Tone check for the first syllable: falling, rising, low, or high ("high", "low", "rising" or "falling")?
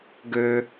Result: high